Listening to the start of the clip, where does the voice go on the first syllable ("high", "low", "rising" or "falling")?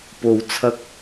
low